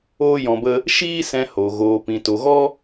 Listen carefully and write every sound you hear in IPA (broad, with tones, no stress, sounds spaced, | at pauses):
oː˦ j ɔ̃˧ b ə˦ | ʃ iː˦ s ɛ̃˧ h o˨ ɣ oː˨ p ĩ˨ t o˨ ɣ ɔ˦